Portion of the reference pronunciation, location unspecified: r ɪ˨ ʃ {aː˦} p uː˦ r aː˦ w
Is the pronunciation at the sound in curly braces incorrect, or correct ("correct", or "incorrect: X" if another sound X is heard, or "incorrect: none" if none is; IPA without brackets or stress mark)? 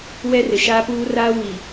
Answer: correct